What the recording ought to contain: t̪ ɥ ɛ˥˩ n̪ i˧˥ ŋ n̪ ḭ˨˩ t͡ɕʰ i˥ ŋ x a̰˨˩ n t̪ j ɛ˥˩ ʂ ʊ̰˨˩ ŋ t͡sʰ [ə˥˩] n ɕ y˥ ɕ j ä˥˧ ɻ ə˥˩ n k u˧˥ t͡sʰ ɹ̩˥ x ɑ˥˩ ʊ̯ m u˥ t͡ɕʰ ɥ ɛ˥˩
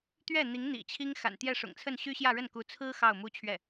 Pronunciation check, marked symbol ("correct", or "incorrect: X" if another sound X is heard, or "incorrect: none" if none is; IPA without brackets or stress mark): correct